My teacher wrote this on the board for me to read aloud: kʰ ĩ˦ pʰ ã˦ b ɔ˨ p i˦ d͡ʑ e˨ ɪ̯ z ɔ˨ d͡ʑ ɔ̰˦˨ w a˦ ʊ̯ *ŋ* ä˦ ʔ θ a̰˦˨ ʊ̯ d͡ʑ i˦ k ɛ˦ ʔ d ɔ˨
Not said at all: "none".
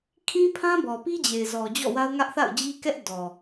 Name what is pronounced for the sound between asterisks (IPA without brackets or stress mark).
ŋ